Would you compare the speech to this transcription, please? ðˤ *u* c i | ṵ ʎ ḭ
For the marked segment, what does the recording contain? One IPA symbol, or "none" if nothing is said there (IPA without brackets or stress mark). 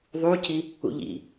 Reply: u